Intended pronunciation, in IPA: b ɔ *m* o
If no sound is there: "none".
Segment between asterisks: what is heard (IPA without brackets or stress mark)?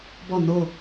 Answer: n